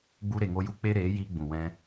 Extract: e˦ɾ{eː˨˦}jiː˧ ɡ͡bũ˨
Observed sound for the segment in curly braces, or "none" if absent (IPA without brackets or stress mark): eː˨˦